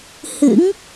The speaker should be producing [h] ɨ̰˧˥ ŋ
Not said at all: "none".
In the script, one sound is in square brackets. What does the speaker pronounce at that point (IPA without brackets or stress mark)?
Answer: h